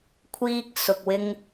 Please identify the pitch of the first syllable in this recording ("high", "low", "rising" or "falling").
high